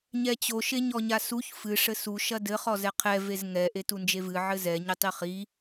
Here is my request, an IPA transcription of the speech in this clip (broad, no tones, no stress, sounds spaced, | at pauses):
ɲ ɛ t͡ɕ o ʃ e ɲ ɔ ɲ a s u ç f ɨ ʂ ɘ s u ʃ ɐ d ɘ χ ɔ z ɛ qʰ ɛ v e z ŋ ɛ ʔ e t u n d͡ʒ e v ɨ ʕ ɘ z ɛ ɲ ɘ tˤ i χ i